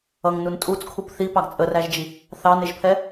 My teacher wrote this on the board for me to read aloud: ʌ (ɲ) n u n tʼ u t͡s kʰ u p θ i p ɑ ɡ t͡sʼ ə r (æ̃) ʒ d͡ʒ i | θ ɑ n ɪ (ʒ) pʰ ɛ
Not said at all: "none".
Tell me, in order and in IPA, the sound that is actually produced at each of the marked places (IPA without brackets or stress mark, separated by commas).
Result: ŋ, æ, ʒ